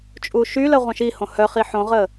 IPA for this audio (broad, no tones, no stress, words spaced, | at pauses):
t͡ʃʼuʃylə ʁʷœ̃ʃihõ hœχi ħõʁə